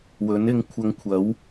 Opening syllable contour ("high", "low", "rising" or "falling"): rising